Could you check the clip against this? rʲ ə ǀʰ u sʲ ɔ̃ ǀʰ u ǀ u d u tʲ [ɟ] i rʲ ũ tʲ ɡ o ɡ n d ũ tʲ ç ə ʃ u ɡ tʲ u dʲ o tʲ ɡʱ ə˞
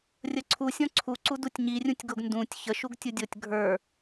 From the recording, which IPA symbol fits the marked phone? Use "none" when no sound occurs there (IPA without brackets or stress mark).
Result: ɲ